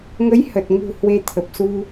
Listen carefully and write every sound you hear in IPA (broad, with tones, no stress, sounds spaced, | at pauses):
ŋ ə˨˦ j h ə˨˩ t̚ ŋ ṳ˨˩ h w e˧ t̪ʰ ə˨˩ p̚ s u˧